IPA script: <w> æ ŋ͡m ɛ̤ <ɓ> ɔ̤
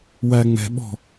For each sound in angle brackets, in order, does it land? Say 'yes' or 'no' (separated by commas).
yes, yes